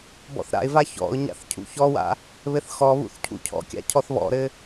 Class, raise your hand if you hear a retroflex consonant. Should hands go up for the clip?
no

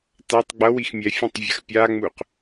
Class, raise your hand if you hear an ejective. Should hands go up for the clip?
no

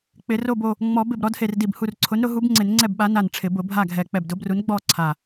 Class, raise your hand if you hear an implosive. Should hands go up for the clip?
yes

